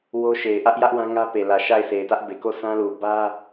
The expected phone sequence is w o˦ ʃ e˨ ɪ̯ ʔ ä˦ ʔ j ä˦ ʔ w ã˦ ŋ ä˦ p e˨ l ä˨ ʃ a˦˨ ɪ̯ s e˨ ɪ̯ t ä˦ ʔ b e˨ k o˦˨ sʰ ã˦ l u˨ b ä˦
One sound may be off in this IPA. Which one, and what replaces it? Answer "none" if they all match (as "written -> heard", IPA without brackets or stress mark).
none